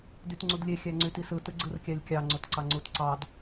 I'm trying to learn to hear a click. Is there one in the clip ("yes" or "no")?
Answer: yes